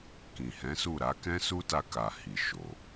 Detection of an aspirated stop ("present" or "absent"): absent